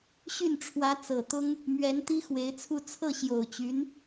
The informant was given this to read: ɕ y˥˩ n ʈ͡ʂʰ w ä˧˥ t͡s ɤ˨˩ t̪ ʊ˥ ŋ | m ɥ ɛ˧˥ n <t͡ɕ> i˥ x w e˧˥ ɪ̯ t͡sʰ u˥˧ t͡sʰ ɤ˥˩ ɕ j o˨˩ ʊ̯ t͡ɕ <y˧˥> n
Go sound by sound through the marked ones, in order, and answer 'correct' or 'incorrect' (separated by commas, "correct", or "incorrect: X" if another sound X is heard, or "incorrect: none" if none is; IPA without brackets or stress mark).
incorrect: t̪, correct